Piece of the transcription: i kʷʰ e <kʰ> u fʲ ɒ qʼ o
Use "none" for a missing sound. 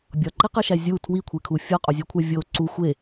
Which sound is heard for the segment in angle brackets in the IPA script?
kʰ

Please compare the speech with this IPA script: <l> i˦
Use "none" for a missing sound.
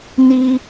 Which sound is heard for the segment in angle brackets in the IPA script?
n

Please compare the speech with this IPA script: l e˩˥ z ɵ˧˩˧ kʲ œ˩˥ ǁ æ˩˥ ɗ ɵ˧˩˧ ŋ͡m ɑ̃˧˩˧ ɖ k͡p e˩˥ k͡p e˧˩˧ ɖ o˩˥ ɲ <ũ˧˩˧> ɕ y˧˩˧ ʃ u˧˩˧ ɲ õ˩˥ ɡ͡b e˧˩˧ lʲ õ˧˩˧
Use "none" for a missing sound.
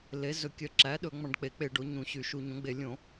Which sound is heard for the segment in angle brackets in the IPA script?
ũ˧˩˧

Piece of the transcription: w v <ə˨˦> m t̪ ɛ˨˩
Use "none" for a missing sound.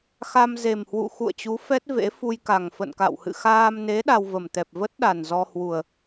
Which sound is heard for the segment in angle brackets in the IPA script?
ə˨˩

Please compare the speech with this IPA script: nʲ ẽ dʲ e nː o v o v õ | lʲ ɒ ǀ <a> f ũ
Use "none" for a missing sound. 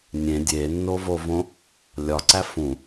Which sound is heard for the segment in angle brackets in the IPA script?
æ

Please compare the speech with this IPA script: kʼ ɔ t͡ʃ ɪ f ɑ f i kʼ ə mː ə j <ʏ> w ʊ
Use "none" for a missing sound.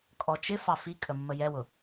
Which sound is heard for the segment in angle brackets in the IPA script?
ɛ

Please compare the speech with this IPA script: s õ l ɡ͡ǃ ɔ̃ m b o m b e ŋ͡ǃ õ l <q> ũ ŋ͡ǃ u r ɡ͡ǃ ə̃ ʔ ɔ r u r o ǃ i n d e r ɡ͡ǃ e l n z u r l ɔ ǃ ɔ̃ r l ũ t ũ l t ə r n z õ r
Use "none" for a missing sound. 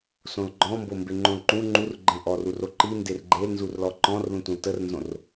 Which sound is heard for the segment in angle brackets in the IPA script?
ǃ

